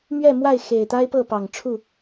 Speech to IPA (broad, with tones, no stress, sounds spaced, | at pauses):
m ɥ ɛ˥˨ m w a˥˨ ɪ̯ x e˨˩ ɪ̯ t̪ a˦ ɪ̯ p ɤ˥˨ p ɑ˨˩ ŋ ʈ͡ʂʰ u˥˨